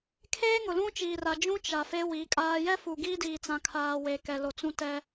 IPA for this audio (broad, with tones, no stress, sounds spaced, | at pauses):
kʰ eː˦ ŋ ʊ˨ l ũ˦ t͡ʃ iː˨ r a˨ d͡ʒ ũ˦ t͡ʃ a˨ f e˦ w i˨˦ kʼ aː˦ j ɛ˦ f u˨ ɡ iː˦ d iː˨ t͡s ã˨ kʰ aː˨ w e˨ k ɛ˨ l o˨ t͡s ũ˦ t ɛ˦